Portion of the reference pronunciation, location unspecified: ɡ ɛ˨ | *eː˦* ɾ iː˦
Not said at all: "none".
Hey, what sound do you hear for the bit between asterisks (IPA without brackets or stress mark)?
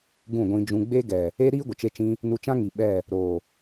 e˦